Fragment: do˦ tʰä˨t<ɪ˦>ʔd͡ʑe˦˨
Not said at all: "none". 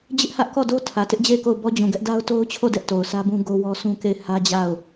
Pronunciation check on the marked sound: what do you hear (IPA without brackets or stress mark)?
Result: ɪ˦